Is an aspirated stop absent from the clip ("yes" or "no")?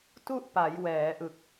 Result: yes